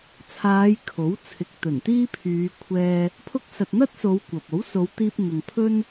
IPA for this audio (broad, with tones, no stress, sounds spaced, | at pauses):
t͡sʰ aː˨˧ j kʰ o˨˥ w t͡sʰ ɪ˨ k̚ t̪ ɵ˨˩ n t̪ iː˥ pʰ yː˨˧ kʷʰ ɛː˧ | pʰ ʊ˧ k̚ s ɐ˨ t̚ n̪ ɐ˥ t̚ s o˨˧ w kʷ ɐ˨ p̚ o˨˥ w s o˨˧ w t̪ iː˧ p̚ n̪ ʊ˨ ŋ pʰ ɵ˥ n